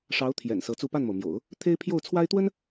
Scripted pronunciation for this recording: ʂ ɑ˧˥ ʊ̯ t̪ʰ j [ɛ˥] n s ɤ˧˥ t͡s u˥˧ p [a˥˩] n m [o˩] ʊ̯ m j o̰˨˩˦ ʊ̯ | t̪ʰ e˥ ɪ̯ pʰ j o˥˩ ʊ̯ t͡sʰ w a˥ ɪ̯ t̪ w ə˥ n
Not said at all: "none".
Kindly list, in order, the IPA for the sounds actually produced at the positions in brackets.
ɛ̰˨˩, a˥˩, o˩

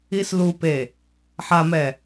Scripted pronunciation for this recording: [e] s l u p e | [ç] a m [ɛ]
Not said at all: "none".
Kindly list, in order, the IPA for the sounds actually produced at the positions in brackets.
i, ħ, ɛ

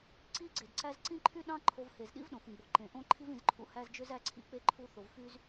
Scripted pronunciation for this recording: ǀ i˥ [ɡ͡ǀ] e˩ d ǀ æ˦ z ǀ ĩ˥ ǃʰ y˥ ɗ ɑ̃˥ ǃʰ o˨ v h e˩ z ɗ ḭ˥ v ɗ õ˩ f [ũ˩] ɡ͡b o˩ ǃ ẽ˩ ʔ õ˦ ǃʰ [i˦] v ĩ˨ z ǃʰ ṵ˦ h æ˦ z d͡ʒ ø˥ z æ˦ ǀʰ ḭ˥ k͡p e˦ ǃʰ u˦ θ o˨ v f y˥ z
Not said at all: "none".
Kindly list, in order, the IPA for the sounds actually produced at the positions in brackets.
ɡ͡ǀ, ũ˩, i˥

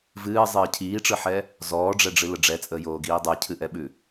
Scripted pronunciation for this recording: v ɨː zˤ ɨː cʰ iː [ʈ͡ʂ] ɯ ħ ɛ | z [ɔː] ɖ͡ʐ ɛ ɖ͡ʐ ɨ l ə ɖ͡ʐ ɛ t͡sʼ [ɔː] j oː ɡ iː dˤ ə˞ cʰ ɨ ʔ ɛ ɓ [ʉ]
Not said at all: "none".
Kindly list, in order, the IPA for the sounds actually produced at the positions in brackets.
ʈ͡ʂ, ɔː, əː, ʉ

